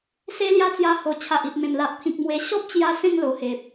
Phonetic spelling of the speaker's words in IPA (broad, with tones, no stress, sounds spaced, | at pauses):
s e˦ l j a˦ t͡s j a˧ h o˨˩ t͡ɕʰ a˨ ʔ i˨ p̚ m ẽ˨˩ m l a˨ ʔ t̪ʰ ĩ˨ k̚ m w e˨˩ ɕ ɔ˦ p̚ t͡ɕ j a˧ s ẽ˥˧ ŋ l o˨˩ h e˨ p̚